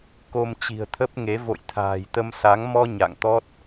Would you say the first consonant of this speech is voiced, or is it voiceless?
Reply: voiceless